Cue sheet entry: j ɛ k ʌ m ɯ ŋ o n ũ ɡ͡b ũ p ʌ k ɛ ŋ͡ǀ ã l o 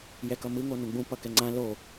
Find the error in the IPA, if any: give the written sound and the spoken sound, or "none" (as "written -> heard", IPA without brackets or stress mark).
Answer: none